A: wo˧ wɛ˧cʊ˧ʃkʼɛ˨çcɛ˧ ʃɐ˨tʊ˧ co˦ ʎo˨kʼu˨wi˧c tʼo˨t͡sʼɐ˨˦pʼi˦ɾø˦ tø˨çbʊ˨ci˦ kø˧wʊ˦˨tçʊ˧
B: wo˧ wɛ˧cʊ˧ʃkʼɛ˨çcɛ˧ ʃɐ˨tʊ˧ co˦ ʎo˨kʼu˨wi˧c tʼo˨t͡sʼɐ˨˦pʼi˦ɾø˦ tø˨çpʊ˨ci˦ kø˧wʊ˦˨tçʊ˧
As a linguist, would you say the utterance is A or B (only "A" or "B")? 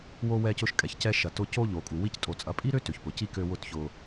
B